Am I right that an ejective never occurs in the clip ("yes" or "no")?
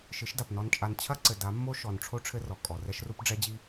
no